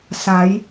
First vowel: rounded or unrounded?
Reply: unrounded